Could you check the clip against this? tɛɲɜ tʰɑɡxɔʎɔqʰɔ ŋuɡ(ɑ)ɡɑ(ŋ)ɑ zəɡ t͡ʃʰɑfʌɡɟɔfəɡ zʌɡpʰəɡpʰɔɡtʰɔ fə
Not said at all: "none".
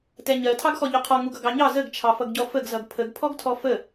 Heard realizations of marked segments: ʌ, ɲ

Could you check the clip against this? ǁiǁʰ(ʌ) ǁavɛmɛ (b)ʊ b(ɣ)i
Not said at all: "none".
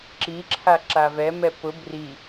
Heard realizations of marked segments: a, p, r

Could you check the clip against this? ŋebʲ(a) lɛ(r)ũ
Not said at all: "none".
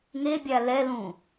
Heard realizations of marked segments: a, l

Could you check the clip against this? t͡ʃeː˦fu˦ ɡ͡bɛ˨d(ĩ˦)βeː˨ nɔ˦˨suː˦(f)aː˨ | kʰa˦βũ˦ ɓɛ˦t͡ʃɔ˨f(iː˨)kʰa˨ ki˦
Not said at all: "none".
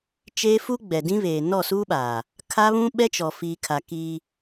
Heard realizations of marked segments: ĩ˦, ɓ, iː˨

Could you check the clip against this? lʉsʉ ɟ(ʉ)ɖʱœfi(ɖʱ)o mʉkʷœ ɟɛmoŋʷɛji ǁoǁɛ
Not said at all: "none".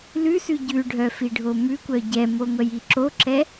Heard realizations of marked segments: ʉ, ɖʱ

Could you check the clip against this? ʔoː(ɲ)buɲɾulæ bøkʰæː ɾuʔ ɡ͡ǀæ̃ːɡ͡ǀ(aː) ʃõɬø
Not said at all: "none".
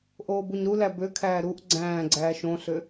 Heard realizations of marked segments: none, æː

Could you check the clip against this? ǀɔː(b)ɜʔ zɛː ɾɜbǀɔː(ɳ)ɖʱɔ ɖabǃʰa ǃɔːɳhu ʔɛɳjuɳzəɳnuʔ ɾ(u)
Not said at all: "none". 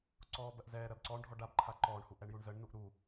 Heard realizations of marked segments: b, ɳ, u

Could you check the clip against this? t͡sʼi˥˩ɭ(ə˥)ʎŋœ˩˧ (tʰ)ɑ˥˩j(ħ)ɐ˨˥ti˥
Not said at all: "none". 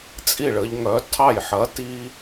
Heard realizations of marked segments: ə˩˧, tʰ, ħ

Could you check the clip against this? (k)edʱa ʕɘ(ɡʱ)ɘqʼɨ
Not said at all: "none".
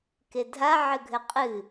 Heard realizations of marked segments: k, ɡʱ

